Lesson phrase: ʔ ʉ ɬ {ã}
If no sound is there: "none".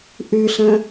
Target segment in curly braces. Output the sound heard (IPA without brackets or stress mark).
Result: ə̃